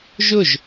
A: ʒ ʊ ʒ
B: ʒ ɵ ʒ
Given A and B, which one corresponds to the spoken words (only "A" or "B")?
A